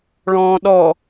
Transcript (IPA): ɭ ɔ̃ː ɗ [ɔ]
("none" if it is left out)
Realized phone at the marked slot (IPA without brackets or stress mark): ɔ